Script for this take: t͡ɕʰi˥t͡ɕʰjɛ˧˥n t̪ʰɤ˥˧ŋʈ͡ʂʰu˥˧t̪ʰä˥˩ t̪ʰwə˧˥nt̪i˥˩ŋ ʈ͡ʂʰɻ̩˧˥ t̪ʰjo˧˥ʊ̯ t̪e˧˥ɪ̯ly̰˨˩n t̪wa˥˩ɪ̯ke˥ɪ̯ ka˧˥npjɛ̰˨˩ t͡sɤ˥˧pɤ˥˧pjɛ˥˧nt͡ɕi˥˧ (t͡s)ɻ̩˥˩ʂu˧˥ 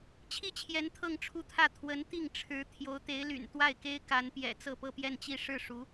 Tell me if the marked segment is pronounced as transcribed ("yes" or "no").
no